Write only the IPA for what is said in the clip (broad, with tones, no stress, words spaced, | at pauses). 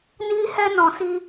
ni˦hɛ˦nɔ̃˧ si˦